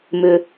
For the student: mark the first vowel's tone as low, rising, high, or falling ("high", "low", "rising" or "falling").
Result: low